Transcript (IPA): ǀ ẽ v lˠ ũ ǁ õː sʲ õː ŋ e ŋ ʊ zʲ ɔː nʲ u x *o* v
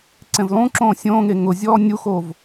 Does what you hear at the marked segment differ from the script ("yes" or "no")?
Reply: no